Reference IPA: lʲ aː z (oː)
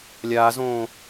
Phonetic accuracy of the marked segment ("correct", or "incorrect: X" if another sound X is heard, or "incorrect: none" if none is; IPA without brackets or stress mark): incorrect: õː